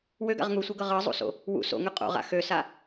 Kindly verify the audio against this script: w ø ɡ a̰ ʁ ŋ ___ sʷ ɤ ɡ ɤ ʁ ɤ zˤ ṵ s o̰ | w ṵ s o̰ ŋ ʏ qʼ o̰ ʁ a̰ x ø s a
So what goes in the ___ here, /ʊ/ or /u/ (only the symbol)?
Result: u